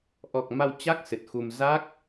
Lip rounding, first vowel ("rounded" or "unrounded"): rounded